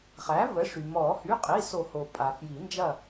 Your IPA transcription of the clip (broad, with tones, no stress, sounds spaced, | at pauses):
χ æ˩˥ v ə˩˥ ʂ y˩ m ɔ˨˩˦ h y˩˧˩ qʼ i˩˧˩ s o˨˩˦ h o˩ pʼ a˩ f j i˨˩˦ n d͡ʒ ɐ˥˨